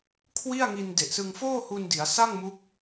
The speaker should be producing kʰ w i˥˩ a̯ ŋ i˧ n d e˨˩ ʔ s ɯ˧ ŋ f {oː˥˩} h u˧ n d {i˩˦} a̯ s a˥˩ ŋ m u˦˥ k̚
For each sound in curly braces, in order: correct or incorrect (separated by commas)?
correct, correct